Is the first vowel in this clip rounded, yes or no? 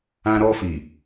no